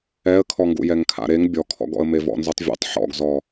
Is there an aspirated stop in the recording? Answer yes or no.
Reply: yes